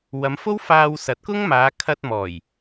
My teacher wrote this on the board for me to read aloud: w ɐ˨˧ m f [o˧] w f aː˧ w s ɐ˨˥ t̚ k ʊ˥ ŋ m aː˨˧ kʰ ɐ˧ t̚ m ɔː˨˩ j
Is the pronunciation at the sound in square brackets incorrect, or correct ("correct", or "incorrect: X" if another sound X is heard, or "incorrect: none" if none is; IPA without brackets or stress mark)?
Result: incorrect: o˥